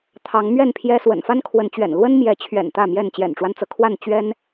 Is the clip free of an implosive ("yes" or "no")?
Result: yes